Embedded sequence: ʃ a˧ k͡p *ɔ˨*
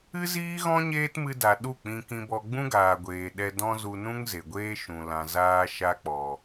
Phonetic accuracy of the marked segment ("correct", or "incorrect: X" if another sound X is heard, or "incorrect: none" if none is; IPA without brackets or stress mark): correct